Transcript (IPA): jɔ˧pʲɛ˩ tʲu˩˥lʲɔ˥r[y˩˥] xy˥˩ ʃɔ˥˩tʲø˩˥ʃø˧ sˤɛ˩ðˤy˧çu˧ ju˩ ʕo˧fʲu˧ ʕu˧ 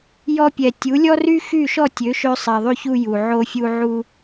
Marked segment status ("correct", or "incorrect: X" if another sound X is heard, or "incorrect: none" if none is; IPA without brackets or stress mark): incorrect: y˥